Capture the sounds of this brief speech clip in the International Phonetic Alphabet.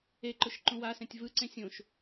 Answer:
e ǃ ʊ ʃ ǃ ũ w a s ɛ̃ tʲ v ɯ ǀ ẽ sʲ õ ʃ

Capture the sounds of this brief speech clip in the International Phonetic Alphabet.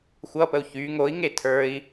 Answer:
xʷ ʌ p ə u̯ ç y ŋ o i̯ ŋ e tʰ ə˞ i̯

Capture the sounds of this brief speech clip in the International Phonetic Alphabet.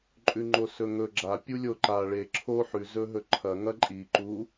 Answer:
ǃʼ ʉ ŋ͡ǃ o s ɵ ŋ ɵ ɡ͡ǁ a pʲ u lʲ o ǃ a ɭ e ǁʰ o ħ ʉ z ɵ ɦ ɵ ǃʰ ɐ ŋ ɐ ǃʼ i ǃ u

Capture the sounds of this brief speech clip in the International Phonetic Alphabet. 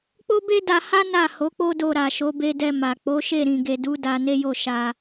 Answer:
k͡p o˦ b e˦ d a˧ h a˦ n a˦˨ h o˨˦ k͡p o˦ d o˧ ɾ a˨ ʃ o˨˦ b e˧ d ɛ˧ m a˨ k͡p o˨˦ ʃ e˦˨ ɾ ĩ˨ ɡ e˨ d u˨˦ d a˧ n e˦ j o˦˨ ʃ a˧

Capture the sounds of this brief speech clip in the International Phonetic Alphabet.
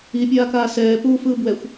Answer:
i pʲ aː k aː s ɛː p uː f ɯː b w ɛ xʷ

